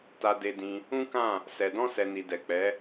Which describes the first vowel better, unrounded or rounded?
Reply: unrounded